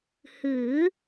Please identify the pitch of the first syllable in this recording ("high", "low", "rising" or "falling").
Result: rising